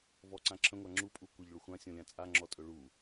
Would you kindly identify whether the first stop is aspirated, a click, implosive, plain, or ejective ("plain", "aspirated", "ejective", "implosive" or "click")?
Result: click